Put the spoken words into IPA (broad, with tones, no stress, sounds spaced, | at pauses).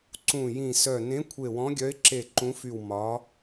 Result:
ǀ ũ˧˩ j ĩ˧˩ s œ˧˩ n ẽ˨˥ kʷʰ e˧˩ w ɔ̃˨˥ ɡʲ œ˨˥ ɪ̯ ǁ e˧˩ ǃ ũ˨˥ f y˧˩ w m ɒ˨˥